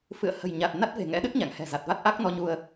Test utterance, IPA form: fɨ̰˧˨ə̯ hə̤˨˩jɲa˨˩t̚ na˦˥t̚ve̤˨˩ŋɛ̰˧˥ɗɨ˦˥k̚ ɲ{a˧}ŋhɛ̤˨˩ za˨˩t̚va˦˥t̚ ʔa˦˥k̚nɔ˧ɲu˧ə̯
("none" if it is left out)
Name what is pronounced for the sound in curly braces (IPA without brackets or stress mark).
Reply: a̰˧˨